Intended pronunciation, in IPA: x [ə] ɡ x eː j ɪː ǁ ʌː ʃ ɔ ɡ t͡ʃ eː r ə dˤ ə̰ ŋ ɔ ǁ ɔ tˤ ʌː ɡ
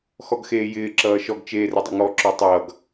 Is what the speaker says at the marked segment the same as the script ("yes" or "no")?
no